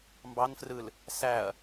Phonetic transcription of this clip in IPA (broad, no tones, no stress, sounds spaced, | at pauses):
m b ɑ n f r ɯ l | s æ ɐ̯